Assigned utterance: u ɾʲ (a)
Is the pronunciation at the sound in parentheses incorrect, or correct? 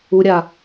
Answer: correct